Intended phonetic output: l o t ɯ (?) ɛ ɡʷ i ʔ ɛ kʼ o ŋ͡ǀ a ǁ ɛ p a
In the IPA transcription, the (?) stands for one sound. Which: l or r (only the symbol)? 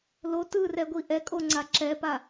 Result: r